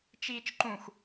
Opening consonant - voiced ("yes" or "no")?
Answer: no